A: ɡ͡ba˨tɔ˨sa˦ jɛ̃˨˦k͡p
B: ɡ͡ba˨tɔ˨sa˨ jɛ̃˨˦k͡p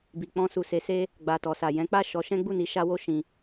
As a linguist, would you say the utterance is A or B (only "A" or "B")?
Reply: B